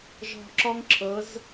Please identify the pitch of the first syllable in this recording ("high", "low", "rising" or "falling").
low